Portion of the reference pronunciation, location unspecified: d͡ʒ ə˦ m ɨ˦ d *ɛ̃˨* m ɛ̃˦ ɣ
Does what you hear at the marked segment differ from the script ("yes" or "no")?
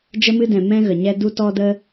no